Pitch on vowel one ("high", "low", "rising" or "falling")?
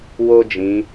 high